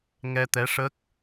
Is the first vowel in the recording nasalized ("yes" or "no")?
no